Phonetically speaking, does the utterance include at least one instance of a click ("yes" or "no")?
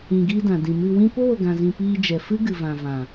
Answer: no